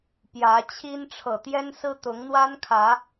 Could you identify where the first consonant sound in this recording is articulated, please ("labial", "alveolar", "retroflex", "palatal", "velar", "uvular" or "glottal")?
labial